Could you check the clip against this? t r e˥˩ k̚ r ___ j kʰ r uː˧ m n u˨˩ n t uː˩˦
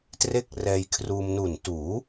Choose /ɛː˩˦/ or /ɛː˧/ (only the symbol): ɛː˧